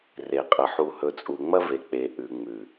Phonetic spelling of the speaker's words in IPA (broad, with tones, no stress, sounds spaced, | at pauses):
r e˨ qʼ ɐ˨ ħ u˨ h ɵ˨ t͡sʼ u˨ ŋ͡m ɐ˦ v e˨ k͡p e˨ ʔ ʉ˨ ŋ͡m ʉ˨